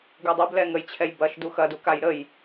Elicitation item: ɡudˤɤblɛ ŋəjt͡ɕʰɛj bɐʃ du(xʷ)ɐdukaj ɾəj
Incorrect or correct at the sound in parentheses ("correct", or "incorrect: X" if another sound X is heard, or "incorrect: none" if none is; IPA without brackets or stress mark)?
incorrect: x